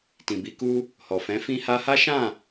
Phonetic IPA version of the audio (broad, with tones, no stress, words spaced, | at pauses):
tĩ˨bi˨˦ku˦ | hɔ˨fɛ̃˨˦ fĩ˧ha˧ha˦ ʃã˦˨